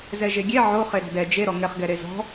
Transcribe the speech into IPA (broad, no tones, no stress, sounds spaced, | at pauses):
z ɛ ʒ e ɡʲ e ʕ o χ e ɾ ɔ̤ d ɛ d͡ʒ e ɾ ɔ ŋ ɛ χ ɡ ɛ ɾ e z ɔ̤